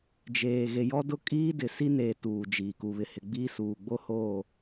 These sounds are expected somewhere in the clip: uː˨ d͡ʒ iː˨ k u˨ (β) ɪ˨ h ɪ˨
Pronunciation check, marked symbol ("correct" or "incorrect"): correct